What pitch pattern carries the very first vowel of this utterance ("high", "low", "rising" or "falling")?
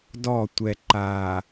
falling